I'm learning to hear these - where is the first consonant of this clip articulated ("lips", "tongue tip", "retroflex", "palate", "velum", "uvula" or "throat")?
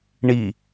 retroflex